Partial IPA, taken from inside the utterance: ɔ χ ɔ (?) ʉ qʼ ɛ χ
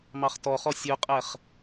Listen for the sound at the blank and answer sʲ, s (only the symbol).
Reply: sʲ